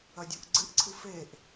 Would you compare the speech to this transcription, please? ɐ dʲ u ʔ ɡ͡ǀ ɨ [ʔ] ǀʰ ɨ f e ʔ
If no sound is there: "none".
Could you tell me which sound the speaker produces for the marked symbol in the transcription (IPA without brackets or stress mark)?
ʔ